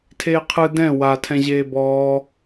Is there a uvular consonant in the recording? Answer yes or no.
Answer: yes